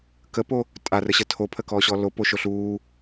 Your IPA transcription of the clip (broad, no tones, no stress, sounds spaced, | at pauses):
k ə p o | tʼ a r ə ɕ ə tʰ o pʰ ə k ɔː ɕ ɔ l o p o ʃ o ɬ uː